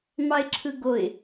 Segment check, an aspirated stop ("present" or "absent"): present